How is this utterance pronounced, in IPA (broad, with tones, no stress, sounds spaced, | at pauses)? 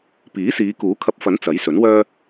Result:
p iː˨˥ s iː˨˧ k uː˨˥ kʰ ɐ˧ p̚ f ɐ˨˥ n t͡s ɐ˨˥ j s ɵ˨˥ n w œː˥